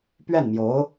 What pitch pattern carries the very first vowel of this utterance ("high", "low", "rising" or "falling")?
falling